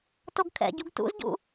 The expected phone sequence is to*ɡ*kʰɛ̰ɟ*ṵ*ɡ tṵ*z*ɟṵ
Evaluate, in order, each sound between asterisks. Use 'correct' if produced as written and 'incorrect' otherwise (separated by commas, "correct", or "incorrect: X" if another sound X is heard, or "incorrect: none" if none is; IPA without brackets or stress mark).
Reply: correct, incorrect: u, correct